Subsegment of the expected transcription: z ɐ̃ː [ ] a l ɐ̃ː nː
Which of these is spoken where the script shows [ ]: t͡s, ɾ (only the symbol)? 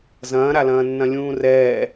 ɾ